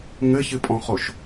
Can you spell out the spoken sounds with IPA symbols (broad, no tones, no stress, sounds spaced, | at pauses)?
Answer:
ŋ ɘ ç ɨ pʼ ɔ̃ χ o ʃ